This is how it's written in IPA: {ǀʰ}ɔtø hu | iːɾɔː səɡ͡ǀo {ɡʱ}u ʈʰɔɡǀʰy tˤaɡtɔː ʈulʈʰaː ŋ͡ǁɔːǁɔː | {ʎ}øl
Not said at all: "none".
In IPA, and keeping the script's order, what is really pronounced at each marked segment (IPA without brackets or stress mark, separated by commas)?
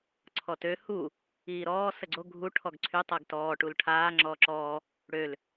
ǀʰ, ɡʱ, ɽ